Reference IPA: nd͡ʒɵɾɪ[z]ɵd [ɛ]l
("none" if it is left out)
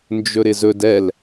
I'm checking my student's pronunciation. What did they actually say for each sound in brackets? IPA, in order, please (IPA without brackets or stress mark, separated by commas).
z, ɛ